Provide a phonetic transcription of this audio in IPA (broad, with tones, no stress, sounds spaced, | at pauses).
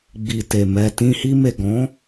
ɡ͡b i˨ t e˨ m ɛ˨ t ĩ˧ h i˧ m e˨ ɡ ɔ̃˨˦